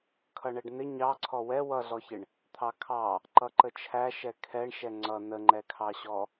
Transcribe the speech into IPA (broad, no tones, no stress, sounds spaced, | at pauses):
kʰ ʌ ɳ ɛ ɖ n̪ ɪ ɲ ɑ ǀʰ ɔ w ɛ w ʌ ɮ ɔ ç ɪ ɳ | t̪ʰ ɑ kʰ ɑ | ǃ ʌ ǃ ə t͡ʃʰ æ ʃ ɛ kʰ ɛ ɳ ʃ ɛ ŋ͡ǀ ʌ n ə ŋ͡ǃ ɛ kʰ ɑ ɕ ɔ